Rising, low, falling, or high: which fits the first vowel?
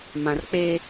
low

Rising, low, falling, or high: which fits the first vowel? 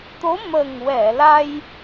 rising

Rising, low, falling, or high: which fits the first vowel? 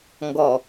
low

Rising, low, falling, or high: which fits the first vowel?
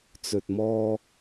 low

